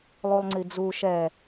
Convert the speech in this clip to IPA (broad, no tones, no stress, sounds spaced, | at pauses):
lˠ u lˠ ŋ͡ǀ i d͡z u ʃ ɛ